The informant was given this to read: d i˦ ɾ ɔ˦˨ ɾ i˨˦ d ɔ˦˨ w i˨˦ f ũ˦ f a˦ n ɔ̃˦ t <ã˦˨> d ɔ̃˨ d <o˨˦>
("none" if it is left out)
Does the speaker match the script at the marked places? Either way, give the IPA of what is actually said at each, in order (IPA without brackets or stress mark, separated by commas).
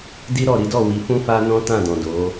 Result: ã˦˨, o˨˦